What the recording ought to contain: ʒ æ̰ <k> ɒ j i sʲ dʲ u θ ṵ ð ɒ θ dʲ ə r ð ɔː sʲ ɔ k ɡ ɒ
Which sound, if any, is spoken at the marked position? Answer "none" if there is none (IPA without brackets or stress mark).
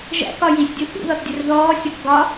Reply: k